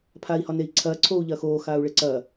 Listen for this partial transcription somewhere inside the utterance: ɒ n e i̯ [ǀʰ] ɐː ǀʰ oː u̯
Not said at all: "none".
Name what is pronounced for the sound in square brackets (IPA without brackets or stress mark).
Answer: ǀʰ